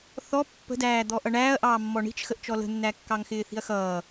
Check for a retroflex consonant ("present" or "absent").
present